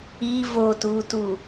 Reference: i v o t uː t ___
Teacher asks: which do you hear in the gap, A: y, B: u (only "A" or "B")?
B